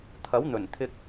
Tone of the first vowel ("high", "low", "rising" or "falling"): rising